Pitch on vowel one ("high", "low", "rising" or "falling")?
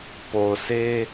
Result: low